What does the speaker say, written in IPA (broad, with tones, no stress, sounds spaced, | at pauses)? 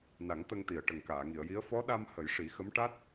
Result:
n a˨˩˦ ŋ t̪ ə˧ ŋ t̪ i˨˩ ə̯ ʈ ə˨˩ ŋ k aː˨˩˨ ŋ i˨˩˨ ə̯ j i˧˥ ə̯ f ɔ˧˥ ɗ a˧ m h ə˨˩˦ j ʂ i˨˩˦ x ə˧˥ m ʈ a˦˥ t̚